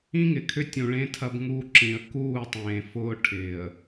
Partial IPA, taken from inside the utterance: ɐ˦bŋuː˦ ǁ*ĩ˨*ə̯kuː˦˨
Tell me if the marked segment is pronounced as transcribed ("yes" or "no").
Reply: yes